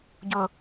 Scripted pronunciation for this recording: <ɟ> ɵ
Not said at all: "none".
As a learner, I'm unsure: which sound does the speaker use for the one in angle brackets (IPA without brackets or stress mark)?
ɟ